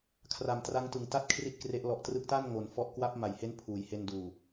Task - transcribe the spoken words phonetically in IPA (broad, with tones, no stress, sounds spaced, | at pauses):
kʰ r a˨˩ m t r a˦˥ ŋ t ɯ˨˩ ŋ t a˥˩ t̚ kʰ r i˥˩ t̚ k r e˦˥ ʔ l ɔ˨˩ ʔ t r ɯ˦˥ k̚ t a˥˩ n ŋ o˨˩ n f ɔ˦˥ ʔ k w a˦˥ p̚ m a˨˩ j h e˦˥ n pʰ uː˩˦ j h e˧ n d uː˨˩